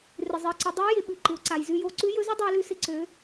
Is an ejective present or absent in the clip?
absent